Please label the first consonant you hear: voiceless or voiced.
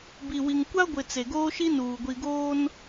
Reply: voiced